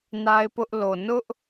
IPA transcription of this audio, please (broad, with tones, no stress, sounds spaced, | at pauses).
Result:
n a˦ ɪ̯ p ʊ˦ ʔ l o˨ n ʊ˦ ʔ